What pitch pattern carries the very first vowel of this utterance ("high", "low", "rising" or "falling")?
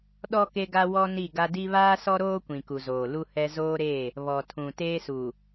high